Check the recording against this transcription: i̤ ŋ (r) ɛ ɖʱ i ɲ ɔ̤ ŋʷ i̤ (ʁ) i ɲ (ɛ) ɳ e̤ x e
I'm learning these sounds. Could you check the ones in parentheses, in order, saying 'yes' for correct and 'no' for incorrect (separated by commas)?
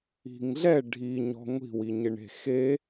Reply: no, no, no